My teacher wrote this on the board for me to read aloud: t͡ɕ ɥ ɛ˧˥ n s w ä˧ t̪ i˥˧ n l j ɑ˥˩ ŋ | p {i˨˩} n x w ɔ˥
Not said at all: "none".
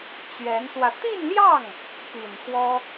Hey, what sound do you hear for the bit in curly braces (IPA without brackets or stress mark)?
i˨˩